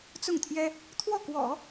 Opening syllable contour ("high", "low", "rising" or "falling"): falling